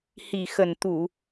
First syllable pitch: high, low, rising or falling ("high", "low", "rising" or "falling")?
low